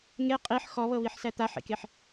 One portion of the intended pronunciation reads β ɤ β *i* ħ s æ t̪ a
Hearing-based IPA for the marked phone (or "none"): i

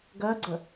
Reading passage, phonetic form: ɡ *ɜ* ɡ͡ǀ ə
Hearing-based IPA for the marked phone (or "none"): ɜ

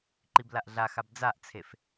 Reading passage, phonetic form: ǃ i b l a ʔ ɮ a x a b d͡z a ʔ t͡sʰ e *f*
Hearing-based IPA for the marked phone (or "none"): f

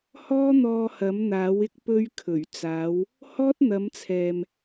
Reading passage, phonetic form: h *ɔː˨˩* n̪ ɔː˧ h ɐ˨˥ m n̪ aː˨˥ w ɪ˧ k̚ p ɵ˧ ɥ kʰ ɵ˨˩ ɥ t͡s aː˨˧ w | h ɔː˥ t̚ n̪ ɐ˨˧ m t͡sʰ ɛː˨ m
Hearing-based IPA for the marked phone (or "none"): ɔː˥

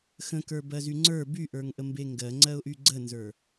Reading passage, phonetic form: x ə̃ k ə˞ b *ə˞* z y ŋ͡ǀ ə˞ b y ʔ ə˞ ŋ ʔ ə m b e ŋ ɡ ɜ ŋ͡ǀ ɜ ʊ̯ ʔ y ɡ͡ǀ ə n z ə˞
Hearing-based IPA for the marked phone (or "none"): ɜ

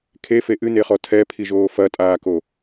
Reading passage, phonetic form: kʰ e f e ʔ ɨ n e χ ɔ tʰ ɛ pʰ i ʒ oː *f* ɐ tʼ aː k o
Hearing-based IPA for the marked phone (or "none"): f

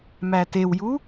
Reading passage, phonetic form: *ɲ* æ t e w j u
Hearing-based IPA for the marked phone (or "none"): m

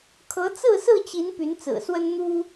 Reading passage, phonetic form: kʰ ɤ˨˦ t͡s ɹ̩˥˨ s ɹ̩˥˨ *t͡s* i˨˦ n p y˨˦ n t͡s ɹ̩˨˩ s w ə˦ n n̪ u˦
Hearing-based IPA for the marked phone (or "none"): t͡ɕ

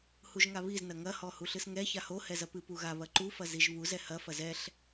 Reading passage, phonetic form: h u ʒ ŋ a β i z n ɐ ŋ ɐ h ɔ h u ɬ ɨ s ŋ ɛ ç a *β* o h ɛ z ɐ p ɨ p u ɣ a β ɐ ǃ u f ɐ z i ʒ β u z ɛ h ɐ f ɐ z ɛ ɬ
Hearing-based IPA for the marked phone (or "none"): h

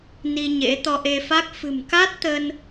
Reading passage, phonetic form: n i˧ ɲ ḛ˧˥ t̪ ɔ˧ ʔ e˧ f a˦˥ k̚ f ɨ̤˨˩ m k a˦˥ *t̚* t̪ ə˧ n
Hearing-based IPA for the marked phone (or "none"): t̚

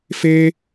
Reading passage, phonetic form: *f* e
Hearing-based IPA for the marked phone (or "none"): f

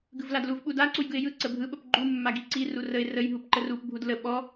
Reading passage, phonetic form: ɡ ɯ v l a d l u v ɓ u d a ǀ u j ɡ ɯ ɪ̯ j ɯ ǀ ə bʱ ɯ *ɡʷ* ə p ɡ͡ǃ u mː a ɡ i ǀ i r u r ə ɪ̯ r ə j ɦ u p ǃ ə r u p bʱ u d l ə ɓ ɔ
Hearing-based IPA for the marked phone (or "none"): ɓ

